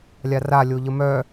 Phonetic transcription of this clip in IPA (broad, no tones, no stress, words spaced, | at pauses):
lʲara lʲoʎəmœ